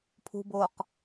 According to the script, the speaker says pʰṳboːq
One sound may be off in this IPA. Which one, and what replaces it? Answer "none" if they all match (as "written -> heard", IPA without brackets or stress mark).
none